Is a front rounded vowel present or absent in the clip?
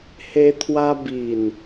absent